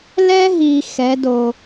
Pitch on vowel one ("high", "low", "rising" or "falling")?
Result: high